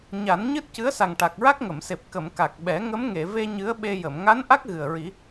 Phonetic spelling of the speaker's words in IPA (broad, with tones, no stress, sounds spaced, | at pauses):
ɲ a˨˩˦ n ɲ ɨ˦˥ t̚ c ɨ˧˥ ə̯ s a˨˩ ŋ ʈ a˨˩ k̚ ɹ a˦˥ k̚ ŋ ə˨˩˨ m s e˨˩ p̚ k ə˨˩˨ m k a˨˩ k̚ ɓ ɛ˨˩˦ ŋ ə˧˥ m ŋ e˨˩˨ v e˧ ɲ ɨ˧˥ ə̯ ɓ e˧ j ə˨˩˨ m ŋ a˧˥ n ʔ a˦˥ k̚ ɣ ɨ˨˩ ə̯ ɹ i˨˩˦